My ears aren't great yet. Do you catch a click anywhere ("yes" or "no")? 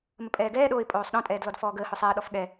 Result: no